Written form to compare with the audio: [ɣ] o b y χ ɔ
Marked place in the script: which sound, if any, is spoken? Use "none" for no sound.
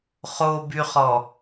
χ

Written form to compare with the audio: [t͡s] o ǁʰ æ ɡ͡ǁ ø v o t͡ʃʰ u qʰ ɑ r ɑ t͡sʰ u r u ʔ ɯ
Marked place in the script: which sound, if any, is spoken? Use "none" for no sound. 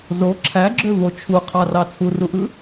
z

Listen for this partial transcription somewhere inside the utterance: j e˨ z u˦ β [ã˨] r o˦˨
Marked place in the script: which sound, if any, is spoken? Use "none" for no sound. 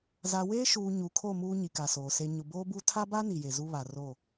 a˨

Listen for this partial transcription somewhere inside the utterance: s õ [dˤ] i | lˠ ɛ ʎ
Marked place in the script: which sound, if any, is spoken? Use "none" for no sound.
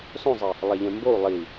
zˤ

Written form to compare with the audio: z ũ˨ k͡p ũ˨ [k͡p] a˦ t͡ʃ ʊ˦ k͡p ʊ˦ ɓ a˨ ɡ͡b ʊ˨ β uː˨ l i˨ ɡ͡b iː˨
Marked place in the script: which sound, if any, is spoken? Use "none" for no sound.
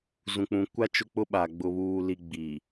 kʷ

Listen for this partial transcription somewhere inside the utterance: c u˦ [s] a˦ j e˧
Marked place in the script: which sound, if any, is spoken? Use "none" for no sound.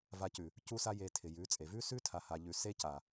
s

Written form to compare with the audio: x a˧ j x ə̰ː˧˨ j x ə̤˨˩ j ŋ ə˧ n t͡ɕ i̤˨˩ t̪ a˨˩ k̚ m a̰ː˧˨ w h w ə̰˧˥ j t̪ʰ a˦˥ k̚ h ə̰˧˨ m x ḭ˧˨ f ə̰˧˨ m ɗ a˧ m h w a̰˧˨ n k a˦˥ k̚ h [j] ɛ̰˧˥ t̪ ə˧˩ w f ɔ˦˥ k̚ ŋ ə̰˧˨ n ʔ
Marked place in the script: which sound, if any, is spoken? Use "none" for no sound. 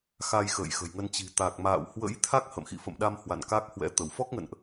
w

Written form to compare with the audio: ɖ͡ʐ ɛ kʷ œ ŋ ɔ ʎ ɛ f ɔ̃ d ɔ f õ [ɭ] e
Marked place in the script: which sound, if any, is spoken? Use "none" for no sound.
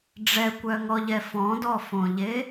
ʎ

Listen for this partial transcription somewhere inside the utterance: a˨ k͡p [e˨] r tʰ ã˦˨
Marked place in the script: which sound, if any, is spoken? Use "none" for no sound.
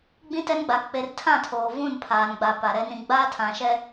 e˦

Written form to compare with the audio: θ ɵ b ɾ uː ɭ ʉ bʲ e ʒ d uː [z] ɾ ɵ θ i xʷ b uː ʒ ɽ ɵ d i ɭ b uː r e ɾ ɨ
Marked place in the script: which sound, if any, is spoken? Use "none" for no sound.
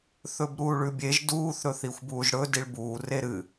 θ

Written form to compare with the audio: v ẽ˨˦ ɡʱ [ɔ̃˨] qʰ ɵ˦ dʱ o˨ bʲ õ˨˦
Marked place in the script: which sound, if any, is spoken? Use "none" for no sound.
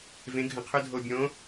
ə̃˨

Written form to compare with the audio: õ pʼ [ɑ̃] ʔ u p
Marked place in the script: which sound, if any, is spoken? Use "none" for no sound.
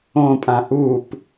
ã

